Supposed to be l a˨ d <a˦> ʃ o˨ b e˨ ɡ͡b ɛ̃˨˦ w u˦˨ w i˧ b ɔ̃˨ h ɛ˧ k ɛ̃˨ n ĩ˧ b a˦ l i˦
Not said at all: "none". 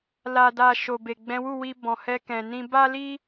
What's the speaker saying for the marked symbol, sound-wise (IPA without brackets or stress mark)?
a˨